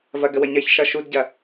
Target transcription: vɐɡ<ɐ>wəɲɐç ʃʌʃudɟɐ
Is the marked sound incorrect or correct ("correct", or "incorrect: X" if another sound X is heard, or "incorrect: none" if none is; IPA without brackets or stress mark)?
incorrect: ə